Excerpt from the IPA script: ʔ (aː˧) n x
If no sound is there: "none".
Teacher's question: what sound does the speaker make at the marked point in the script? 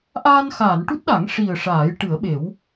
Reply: aː˧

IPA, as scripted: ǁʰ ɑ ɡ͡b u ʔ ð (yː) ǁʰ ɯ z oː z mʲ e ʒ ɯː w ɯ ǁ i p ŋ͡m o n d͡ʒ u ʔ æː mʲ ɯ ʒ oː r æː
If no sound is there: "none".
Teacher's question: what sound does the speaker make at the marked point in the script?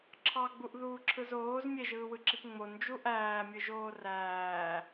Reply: uː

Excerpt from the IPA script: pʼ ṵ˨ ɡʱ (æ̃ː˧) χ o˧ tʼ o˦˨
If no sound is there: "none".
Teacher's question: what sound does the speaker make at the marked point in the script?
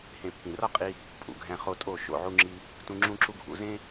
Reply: æ̃˧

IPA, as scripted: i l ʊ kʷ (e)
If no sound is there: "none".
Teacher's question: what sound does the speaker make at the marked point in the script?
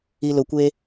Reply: e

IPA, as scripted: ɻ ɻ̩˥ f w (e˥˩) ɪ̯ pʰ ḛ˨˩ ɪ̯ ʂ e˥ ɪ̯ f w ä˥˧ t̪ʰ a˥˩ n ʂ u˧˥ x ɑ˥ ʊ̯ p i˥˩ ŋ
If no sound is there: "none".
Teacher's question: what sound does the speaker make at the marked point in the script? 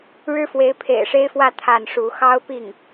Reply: e˧˥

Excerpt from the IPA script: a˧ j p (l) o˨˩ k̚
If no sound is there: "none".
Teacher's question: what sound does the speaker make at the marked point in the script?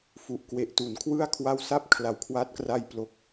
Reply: l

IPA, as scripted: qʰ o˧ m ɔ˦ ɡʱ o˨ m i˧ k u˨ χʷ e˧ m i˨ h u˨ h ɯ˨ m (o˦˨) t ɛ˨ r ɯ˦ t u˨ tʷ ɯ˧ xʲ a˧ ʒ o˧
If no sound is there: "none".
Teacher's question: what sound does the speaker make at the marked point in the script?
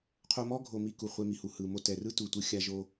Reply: o˧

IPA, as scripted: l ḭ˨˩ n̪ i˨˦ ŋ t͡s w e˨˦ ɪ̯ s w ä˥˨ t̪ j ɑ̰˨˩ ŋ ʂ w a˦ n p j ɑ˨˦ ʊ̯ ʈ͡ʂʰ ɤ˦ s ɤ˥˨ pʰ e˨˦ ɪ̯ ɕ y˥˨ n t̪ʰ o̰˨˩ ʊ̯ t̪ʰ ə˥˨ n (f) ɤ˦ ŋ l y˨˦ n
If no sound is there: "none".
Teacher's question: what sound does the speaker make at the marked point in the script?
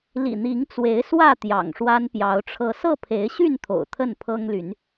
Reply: pʰ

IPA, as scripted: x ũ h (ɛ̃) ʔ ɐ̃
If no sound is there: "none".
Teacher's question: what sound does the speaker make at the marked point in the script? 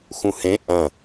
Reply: ẽ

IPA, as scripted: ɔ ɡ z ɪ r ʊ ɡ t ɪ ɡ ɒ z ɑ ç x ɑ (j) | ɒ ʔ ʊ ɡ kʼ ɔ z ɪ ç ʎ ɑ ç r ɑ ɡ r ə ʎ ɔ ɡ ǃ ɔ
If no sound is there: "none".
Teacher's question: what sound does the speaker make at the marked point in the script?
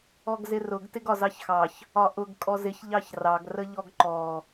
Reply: ç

